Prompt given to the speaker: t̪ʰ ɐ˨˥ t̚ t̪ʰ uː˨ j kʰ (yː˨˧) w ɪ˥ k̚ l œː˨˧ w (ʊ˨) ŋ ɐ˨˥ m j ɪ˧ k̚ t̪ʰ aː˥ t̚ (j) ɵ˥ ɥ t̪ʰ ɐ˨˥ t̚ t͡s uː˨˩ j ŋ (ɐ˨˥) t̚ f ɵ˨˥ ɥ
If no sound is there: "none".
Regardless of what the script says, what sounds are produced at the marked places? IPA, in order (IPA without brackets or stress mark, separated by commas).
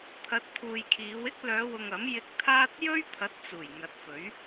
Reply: iː˨˧, ʊ˨, j, ɐ˨˥